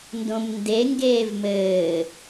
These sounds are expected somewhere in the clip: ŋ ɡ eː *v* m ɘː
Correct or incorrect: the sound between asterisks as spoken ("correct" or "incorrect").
correct